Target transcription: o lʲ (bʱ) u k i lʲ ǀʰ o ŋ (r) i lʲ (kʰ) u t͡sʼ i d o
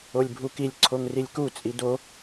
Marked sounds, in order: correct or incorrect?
correct, correct, incorrect

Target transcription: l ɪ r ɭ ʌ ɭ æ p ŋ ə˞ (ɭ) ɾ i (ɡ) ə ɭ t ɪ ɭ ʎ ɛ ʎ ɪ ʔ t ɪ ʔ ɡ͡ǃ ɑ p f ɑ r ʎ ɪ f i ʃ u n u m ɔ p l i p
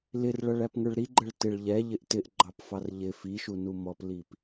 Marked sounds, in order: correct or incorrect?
correct, incorrect

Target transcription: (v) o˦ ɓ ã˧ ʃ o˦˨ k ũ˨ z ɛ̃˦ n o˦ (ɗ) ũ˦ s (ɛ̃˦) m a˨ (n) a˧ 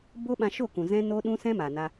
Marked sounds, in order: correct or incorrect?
incorrect, correct, correct, correct

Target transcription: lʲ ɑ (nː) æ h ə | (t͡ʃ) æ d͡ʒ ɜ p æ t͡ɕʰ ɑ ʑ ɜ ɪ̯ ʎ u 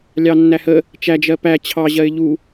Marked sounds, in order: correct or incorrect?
correct, correct

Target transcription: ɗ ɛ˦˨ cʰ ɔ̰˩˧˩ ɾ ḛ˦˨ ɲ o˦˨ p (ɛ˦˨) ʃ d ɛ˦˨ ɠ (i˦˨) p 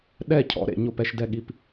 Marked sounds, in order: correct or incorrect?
correct, correct

